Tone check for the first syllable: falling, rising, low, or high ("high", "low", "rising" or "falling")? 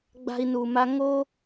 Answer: high